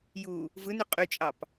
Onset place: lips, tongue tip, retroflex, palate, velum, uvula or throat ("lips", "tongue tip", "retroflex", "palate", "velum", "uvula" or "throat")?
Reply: palate